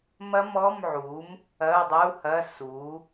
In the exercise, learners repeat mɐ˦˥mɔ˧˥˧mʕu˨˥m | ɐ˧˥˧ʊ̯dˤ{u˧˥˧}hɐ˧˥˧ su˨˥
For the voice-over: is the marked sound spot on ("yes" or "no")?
yes